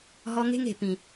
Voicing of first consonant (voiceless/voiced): voiced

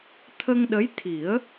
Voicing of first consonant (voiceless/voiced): voiceless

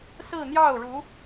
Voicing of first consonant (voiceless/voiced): voiceless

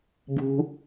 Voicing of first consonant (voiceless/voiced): voiced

